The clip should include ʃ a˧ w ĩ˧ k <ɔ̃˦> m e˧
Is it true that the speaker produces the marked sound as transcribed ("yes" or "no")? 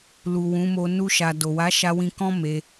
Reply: yes